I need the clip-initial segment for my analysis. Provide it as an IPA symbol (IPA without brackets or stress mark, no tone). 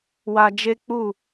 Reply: w